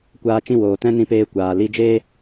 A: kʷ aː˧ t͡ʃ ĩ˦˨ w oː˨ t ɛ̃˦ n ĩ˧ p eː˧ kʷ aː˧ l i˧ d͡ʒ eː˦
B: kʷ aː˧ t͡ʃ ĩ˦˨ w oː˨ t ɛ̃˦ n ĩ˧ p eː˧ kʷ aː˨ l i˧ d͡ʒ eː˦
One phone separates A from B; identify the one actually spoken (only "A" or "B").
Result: B